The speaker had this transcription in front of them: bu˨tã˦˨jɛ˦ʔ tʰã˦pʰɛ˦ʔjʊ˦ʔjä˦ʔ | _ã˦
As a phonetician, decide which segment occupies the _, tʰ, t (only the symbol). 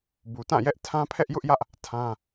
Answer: tʰ